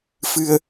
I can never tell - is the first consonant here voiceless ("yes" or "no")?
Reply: yes